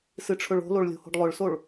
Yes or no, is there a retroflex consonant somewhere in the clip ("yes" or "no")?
yes